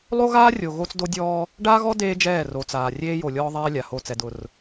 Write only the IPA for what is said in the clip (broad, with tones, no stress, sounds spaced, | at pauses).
lˠ o˦ ɣ aː˦ rʲ o˨ ɣ o˦ t͡s d o˦ dʲ ɔː˦ | ɖ aː˦ ɣ ɔ˦ d eː˦ d͡ʒ ɛː˦˨ r o˨ t͡s aː˨ rʲ eː˦ j o˨ lʲ ɔː˦ ðˤ ɛː˦ lʲ a˨ h o˦˨ t͡s ɛ˨ d ʊ˨ r